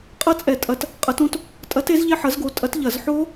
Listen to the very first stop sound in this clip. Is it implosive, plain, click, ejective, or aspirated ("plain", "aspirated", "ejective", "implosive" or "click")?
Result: ejective